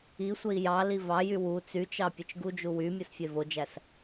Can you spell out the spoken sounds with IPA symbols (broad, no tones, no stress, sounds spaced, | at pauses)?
i sʷ e i̯ j ɑ l i v ɑ j y w u t͡s y t͡ʃ ɑ pʲ ɯ t͡ʃ ɡ u d͡ʒ u w y mʲ ɯ s fʲ e v o d͡ʒ æ s